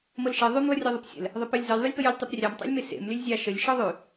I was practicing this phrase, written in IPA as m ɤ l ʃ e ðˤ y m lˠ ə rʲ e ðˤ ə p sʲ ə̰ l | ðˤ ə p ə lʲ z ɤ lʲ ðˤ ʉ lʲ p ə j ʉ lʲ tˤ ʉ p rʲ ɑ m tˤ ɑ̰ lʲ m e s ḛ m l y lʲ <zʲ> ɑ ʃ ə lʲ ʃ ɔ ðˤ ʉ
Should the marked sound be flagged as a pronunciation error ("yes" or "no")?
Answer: no